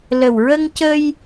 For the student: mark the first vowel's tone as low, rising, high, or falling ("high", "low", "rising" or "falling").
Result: low